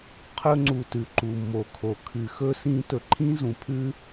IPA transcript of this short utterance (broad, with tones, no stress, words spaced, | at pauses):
qʰɵ˦ ŋ͡ǀu˨tʉ˩ ǃu˩mːo˩ kʰo˨kʰɨ˨xɵ˥ sĩ˦ tɵ˨ǃʰĩ˦ zũ˩ pʰʉ˥